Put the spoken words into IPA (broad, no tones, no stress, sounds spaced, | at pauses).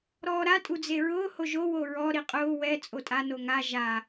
ɾ ɔː ɾ a tʼ u d͡z e ɹ ʊː h o ʒ o w o ɹ ɔ ɾ i qʼ ʊː w ɛ t͡sʼ o tʼ a n o ŋ a ʒ a